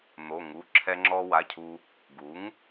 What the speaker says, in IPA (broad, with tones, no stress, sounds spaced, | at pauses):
n̪ o˩˧˩ ŋ u˩˧˩ ǁʰ ɛ˧ ŋ͡ǁ ɔ˧ w a˩˧˩ cʰ u˧ | ɡ u˩˥ ŋ